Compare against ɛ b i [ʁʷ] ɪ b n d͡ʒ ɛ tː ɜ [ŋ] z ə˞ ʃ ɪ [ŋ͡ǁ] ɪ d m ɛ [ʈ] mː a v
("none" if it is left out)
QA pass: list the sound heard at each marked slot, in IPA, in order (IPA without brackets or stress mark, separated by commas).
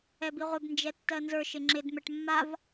ʁʷ, n, ŋ͡ǁ, ʈ